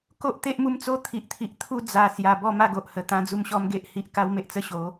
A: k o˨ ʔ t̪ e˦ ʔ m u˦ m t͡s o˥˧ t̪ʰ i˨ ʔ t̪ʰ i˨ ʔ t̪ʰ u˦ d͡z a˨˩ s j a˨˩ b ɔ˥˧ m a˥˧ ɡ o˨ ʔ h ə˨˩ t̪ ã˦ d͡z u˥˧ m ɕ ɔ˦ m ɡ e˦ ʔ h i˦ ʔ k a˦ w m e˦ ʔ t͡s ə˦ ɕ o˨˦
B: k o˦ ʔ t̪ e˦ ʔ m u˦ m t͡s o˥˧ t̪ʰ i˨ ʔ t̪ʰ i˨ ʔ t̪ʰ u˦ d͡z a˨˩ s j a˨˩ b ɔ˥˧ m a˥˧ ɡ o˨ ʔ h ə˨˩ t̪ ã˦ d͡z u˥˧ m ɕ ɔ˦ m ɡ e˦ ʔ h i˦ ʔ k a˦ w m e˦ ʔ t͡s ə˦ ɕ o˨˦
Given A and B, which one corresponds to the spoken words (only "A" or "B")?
B